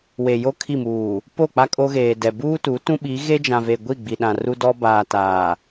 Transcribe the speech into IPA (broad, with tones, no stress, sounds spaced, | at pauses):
w e˨ j o˦ kʰ i˦˨ m uː˨ | p o˦˨ k͡p a˦ kʼ o˦ ɣ eː˨ d ɛ˨ b uː˦ t u˨˦ t ũ˦ ɓ i˨˦ ɣ e˦ d͡ʒ ã˨ v e˨ ɡʷ i˦˨ ɡ͡b i˨ ɗ ã˨ r u˦ d ɔ˦ b aː˨ t aː˨